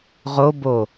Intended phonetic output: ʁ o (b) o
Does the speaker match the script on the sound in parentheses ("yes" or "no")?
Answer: yes